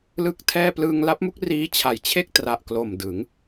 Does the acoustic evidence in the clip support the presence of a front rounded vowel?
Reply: no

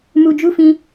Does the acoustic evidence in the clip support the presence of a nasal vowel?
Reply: yes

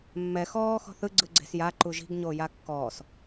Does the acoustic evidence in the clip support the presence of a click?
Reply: yes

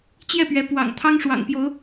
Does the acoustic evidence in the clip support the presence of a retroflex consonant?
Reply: yes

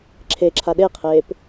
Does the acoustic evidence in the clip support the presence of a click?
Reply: yes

